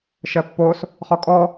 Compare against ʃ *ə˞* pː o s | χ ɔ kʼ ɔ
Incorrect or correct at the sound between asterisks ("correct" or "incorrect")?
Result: incorrect